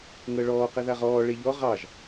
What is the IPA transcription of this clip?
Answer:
ŋ ɤ ɭ ɔː q ɛ ð a ʁ ɔː ɭ e ʎ ɔ ʁ ɑ ʒ

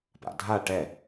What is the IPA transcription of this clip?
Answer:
p a̰ dʱ a ʈ ɛ

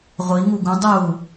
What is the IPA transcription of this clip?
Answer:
ʁʷ i ŋ u ɡ ũ dˤ u

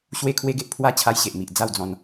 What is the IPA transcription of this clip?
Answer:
ɕ w e˦ kʰ w e˦ ɡ e˦ ʔ pʰ w a˦ t͡ɕʰ a˦ j ɕ e˨ ʔ m i˨ ʔ d͡z a˥˧ w d͡z ɔ̃˧ n

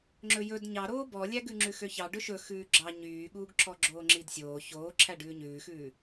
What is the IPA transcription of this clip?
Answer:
ŋ͡ǁ ɵ j ɵ d ɲ ɑ ɾ oː b ɔ lʲ æ ɡ ʉ ŋ͡ǁ ʉ x ø ç ɑ ɖ ɵ ʃ ɵ x ʉː ɡ͡ǁ ɑ ɲ yː ɠ uː ɡ ǁʰ ɔ ɡ͡ǁ oː ŋ͡ǁ i d sʲ oː ç oː ǁʰ æ ɖ ʉː ɲ ʉː x ʉː

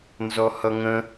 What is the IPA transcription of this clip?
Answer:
n z ɔ h ʌ ŋ ə̃

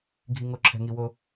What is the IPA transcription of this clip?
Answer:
ɡʱ i˦ ŋ o˦ ǁʰ ɛ̤˦ ŋ i˦ w o˦

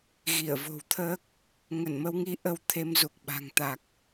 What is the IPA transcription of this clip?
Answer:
ɣ i˧˩ ə̯ v o̤˨˩ w t̪ʰ əː˦˥ k̚ | ŋ ə˧˩ n m ə˨˦ w ŋ i˨˦ ʔ ə˧ w t̪ʰ e˧ m z u˨˩ k̚ ɓ a̤˨˩ ŋ t̪ a˨˩ k̚

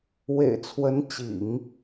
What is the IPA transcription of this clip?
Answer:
w ḛ˨˩ ɪ̯ t͡sʰ w ə˧˥ n t͡ɕ ḭ˨˩˦ ŋ

